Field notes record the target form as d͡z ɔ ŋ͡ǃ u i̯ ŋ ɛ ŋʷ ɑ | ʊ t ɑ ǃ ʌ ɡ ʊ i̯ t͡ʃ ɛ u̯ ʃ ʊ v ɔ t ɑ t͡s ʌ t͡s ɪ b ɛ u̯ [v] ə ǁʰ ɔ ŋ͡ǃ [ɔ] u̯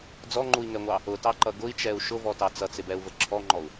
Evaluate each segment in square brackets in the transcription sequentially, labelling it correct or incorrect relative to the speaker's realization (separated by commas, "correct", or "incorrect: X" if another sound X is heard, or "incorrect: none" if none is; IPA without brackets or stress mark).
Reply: correct, correct